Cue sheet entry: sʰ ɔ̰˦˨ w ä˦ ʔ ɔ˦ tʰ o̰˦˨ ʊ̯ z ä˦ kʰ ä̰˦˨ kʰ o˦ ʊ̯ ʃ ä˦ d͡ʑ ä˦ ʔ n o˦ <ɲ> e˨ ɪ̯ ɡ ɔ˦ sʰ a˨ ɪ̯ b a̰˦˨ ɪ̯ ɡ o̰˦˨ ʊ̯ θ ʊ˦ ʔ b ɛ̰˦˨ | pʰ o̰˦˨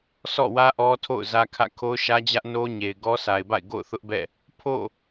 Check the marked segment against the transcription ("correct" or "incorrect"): correct